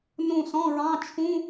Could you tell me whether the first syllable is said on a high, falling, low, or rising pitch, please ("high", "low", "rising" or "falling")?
falling